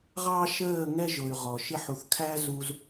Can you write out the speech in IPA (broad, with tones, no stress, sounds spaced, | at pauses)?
ʁ ɑ˦ ʃ əː˦˨ ŋ ɛ˦ ʒ ʊ˨ y̯ ʁ ɔ˨ ʃ ɪ˧ ħ u˨ θ kʰ æ˦ z u˧ z